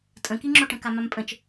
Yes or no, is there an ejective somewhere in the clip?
yes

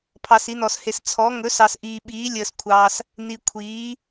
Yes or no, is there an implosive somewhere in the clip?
yes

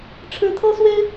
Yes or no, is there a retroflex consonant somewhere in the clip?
yes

